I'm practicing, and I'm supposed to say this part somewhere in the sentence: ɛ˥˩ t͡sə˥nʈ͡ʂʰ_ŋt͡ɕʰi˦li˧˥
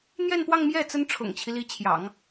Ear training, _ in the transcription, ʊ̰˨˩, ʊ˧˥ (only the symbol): ʊ̰˨˩